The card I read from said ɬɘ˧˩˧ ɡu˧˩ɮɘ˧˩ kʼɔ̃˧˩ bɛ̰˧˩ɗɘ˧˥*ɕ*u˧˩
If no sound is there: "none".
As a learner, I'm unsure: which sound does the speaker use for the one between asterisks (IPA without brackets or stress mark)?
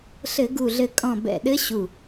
ɕ